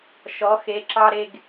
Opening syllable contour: rising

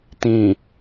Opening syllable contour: low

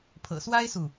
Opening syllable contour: low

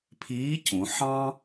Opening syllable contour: rising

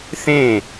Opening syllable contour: falling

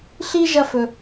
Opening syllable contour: high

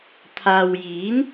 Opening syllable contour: low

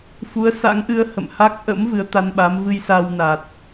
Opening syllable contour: rising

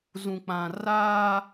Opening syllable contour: low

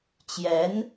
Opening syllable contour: rising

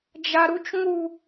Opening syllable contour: high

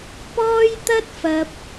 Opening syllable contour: high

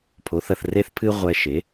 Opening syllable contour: rising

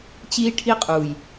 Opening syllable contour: high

